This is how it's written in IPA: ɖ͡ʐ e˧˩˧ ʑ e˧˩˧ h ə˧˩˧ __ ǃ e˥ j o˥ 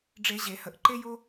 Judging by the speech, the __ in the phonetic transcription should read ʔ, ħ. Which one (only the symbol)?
ʔ